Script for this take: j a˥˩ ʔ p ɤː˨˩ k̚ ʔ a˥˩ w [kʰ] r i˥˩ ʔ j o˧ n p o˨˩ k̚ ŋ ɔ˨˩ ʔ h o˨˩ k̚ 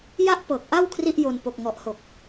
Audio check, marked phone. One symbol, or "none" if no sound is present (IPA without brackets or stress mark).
kʰ